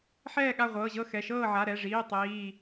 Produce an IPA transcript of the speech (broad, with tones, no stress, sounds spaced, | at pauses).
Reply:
ħ ɛː˥˨ ɠ a˥˨ ʁʷ ɤː˩˧˩ ʑ ɤ˥˨ x ɛ˩˧˩ ʃ ɤː˥˨ ʕ a˩˧˩ ɾ ɛ˩˧˩ ʐ iː˩˧˩ tˤ iː˩˧˩